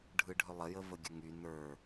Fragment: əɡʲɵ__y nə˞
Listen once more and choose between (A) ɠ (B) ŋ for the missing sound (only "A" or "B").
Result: B